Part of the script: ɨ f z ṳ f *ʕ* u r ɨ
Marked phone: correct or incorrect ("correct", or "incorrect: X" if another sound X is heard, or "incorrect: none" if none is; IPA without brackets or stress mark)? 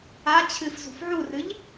correct